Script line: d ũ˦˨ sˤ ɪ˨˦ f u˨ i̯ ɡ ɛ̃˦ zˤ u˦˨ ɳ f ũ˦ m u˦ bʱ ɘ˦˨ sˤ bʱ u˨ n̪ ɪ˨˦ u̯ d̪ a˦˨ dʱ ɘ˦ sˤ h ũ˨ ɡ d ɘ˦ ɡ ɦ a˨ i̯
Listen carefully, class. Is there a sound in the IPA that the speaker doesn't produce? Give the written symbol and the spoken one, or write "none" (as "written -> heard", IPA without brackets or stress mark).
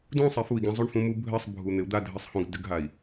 none